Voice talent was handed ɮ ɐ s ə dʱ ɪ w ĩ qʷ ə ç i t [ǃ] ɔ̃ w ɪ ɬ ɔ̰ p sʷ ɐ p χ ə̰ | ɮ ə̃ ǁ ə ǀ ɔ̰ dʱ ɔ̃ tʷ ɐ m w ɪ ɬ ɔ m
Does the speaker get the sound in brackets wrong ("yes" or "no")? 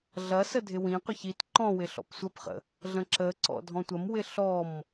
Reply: no